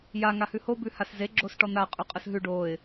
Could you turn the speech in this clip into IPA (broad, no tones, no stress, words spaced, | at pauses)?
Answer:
ja ŋahʉho bʉhasze ɡ͡ǁosʈɔn̪a qʼʉqʼəsɦʉ ɖoɪ̯